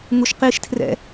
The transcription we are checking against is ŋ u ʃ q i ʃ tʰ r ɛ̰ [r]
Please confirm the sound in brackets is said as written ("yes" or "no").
no